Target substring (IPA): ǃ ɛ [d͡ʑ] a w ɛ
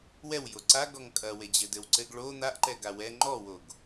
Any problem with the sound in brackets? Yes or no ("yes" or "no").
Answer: yes